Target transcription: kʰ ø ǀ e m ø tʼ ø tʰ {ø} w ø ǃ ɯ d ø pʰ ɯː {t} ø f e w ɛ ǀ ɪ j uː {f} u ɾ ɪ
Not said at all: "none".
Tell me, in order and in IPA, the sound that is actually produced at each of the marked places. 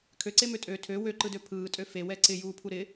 ø, tʼ, pʰ

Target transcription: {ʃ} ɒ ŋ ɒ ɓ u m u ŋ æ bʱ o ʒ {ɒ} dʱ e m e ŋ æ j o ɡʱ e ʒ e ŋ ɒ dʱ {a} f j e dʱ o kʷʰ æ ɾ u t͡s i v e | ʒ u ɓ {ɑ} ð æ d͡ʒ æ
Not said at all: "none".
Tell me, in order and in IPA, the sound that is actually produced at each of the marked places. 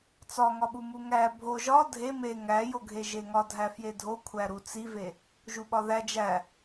t͡s, ɒ, æ, ɒ

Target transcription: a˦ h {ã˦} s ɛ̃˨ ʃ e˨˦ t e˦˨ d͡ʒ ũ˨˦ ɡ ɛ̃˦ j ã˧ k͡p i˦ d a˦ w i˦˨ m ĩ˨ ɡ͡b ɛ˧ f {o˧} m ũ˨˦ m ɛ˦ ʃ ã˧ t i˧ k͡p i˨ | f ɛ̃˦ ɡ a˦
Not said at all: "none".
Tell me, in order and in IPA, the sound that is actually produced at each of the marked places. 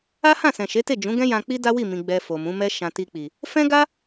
ã˦˨, o˨

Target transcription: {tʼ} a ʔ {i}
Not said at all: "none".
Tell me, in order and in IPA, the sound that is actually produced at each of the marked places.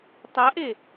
tˤ, e

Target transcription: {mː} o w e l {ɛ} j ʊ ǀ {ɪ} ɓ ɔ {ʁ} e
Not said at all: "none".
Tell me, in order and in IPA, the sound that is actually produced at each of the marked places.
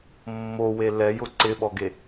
mː, ɛ, ɪ, ɡ

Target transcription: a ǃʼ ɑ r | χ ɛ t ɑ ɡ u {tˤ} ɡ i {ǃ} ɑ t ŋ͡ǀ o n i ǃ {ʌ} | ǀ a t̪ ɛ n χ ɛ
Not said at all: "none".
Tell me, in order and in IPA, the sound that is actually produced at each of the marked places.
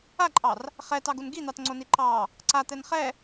n, n̪, ɑ

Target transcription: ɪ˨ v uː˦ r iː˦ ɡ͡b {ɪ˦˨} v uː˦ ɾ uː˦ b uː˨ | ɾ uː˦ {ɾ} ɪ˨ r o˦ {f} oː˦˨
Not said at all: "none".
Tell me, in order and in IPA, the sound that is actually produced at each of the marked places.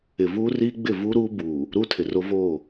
ɪ˦˨, tʰ, v

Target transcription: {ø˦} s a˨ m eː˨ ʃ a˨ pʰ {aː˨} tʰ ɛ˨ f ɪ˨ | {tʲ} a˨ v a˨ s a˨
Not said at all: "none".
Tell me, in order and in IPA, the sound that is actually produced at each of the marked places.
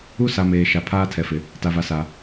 u˦, aː˦, t

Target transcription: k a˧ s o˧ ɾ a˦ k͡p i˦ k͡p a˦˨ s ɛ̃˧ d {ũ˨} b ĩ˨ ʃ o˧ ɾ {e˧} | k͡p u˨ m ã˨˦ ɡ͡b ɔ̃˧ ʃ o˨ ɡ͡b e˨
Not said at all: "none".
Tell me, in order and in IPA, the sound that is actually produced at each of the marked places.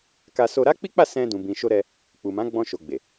ũ˨, ɛ˧

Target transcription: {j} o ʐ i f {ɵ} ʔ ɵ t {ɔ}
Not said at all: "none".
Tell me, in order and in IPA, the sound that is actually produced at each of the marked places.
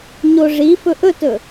ɲ, ɵ, ɵ

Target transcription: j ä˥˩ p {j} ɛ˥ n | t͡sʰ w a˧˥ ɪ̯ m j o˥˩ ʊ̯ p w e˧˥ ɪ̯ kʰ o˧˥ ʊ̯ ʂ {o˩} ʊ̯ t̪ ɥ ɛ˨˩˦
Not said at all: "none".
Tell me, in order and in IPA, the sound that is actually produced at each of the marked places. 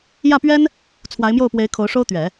ɥ, o˥

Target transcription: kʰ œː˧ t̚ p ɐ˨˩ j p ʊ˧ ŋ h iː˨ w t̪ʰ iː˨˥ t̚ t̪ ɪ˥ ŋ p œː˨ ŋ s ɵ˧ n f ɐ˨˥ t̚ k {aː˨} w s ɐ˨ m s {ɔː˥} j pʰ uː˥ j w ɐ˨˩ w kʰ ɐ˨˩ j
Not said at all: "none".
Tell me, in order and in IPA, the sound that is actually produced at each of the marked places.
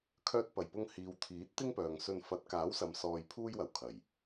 aː˨˥, ɔː˧

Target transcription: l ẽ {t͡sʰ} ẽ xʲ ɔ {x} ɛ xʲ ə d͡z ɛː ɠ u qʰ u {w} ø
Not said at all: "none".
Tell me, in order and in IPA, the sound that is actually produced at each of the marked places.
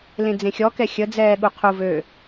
d͡z, k, v

